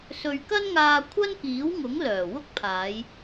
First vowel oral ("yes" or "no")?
yes